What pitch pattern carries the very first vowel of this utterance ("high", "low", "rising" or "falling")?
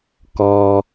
low